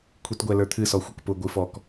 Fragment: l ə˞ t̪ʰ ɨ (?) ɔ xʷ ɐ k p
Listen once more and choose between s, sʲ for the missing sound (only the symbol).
s